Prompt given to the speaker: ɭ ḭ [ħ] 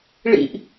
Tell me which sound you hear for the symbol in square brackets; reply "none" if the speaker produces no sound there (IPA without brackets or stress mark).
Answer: ʔ